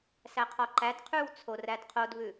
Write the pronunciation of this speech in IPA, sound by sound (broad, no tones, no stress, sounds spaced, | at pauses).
s æ qʰ ɔ ǃ æ d qʰ ʉ w t͡sʰ o r æ d qʰ o d β ʉ